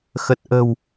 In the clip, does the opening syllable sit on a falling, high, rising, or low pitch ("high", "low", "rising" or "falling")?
low